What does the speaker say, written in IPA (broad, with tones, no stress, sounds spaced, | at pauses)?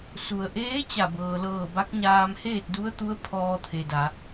s u˩ ə̯ ʔ eː˧˥ t͡ɕ a˧˩ b ɤː˩ l ɤː˧˩ b a˧˥ k̚ ɲ aː˧ m h eː˥˨ t̚ d u˧˥ ə̯ t̪ u˧˥ ə̯ pʰ ɔː˧ t̪ʰ e˩ d a˩˧